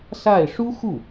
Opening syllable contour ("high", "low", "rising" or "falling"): falling